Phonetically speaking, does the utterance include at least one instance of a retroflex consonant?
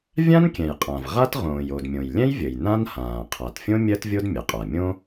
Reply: no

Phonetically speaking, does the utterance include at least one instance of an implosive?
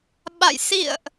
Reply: yes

